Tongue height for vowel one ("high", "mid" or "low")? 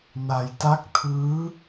low